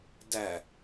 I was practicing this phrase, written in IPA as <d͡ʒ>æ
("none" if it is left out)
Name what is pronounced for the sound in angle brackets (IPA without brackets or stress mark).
d